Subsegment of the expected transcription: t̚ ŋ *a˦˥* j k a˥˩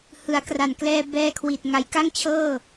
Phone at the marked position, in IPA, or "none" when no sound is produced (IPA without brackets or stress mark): a˨˩